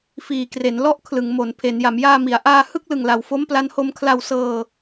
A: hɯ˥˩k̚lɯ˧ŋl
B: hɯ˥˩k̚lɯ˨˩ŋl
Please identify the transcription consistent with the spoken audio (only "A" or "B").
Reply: B